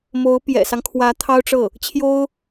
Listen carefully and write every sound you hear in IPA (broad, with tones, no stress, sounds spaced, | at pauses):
m o˧˥ ʊ̯ p j ɛ̰˨˩ s ɑ˦ ŋ kʰ w ä˧˥ t̪ʰ ɑ˥ ʊ̯ ʈ͡ʂ ɤ˥˩ | t͡ɕʰ j o˥ ʊ̯